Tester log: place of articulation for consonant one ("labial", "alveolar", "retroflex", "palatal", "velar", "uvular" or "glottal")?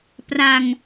labial